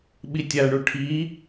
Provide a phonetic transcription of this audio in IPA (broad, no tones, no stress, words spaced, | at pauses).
ɓitʲaɳu ʈʰi